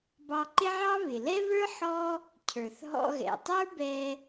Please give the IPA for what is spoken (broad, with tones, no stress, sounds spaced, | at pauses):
b ɑ˧ ǃ ɪ˥ ʕ ɑ˥ β ɪ˩ l ɛ˥ β ə˞˥ ħ ɔ˥ | cʰ ə˞˩ θ ɦ ɔ̰˧ ɣ ɛ̰˩ tˤ ə˞˥ b ɛ˧